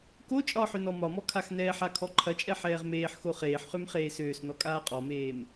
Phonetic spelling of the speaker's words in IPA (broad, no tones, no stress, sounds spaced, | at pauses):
k o t͡ʃʼ ɒ ħ ø n ɔ m ɒ m ɔ kʰ a x n ɛː ħ a kʰ ɔ ǃʰ ɐ t͡ʃʼ ɛ ħ ɛː ʁ m eː ħ x o χ eː ħ χ ø m χ eː s øː s n ɔ kʼ aː qʼ ɔ m eː m